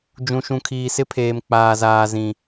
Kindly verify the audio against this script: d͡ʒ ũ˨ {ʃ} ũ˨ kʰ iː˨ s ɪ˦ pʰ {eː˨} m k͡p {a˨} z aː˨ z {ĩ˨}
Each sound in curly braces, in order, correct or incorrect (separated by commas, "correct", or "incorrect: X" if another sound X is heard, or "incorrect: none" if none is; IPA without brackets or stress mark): correct, correct, incorrect: aː˨, correct